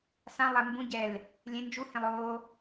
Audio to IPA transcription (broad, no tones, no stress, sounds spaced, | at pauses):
s ã lˠ ɛ m b ũ ɟ ɛ l | lʲ ẽ n d͡ʒ u h ẽ lˠ o